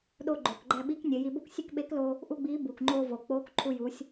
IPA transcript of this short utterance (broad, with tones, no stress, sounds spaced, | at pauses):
ɗ o˧ ɡ͡ǃ oː˩ k ɡ͡ǃ æ˧ ɓ i˧˥ k nʲ e˩˧ j i˧ b o˥ k sʲ e˥ k ɓ e˧˥ k l o˧ | ʔ u˥ ɡ͡b iː˧˥ b uː˩ k ŋ͡ǃ oː˧ v o˩ k͡p oː˧˥ k ǃʰ u˧ j u˩˧ sʲ